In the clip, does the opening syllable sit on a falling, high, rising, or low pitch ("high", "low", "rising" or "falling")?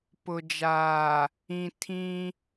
low